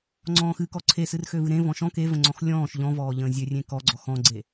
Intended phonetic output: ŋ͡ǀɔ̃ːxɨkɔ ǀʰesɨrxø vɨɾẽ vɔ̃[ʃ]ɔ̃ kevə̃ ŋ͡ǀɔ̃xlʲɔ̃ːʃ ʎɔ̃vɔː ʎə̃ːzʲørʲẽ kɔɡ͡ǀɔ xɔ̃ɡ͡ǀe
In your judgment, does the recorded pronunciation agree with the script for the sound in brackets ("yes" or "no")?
yes